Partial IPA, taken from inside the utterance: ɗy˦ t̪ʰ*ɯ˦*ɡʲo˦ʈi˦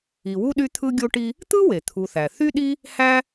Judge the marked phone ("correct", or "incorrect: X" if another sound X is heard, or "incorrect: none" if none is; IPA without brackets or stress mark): correct